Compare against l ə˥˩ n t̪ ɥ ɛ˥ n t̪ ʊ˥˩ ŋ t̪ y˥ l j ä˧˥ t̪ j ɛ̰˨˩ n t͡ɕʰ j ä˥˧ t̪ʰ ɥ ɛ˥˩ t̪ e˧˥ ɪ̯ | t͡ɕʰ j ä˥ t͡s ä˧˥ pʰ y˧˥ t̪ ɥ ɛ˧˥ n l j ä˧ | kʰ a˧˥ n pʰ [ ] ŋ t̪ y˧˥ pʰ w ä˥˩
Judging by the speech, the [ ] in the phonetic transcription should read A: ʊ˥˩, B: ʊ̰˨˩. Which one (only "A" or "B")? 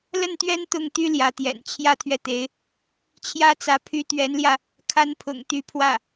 B